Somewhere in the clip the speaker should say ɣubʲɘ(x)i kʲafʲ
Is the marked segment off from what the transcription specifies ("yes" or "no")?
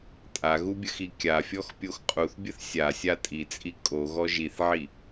no